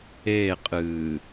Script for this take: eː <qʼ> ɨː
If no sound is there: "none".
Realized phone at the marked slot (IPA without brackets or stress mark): qʼ